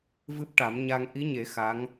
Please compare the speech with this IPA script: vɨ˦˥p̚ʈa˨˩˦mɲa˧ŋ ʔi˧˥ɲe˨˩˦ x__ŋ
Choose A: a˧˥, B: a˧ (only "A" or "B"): A